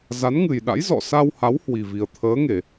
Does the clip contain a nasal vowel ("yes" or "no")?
no